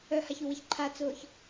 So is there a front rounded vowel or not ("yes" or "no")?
yes